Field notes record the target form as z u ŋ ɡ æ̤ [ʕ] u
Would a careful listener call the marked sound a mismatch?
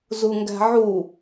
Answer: no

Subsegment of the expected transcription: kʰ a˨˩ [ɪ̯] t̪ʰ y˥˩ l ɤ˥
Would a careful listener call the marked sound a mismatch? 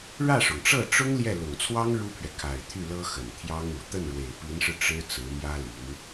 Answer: no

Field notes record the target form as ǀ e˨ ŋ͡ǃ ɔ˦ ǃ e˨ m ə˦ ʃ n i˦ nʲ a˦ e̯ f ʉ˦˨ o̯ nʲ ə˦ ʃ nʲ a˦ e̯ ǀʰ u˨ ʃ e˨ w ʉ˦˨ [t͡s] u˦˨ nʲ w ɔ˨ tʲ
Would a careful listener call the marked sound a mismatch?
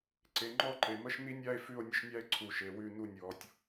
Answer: yes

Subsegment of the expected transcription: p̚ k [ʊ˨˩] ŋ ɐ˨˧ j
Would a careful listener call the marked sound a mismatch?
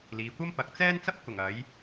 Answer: no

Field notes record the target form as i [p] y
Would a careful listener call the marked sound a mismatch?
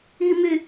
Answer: yes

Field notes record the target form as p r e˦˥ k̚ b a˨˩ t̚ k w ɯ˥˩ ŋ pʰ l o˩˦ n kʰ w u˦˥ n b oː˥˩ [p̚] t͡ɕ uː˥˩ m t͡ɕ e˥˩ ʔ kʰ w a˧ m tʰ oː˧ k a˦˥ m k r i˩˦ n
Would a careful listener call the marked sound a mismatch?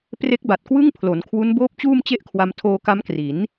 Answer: no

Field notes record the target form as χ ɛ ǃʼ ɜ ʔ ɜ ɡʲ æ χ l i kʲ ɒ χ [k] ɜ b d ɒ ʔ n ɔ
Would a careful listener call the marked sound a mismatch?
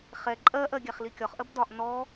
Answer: yes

